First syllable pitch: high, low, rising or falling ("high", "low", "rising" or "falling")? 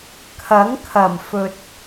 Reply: rising